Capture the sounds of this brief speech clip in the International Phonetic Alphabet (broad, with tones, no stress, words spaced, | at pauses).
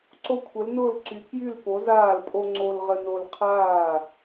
ǀo˦kʷʰə˨˥lnʊː˥˩lǀy˨˥ kjy˥˩lpo˨˥zaː˥˩lpʼo˦ ŋ͡ǀo˦lʁə˦no˦l qʰaː˥˩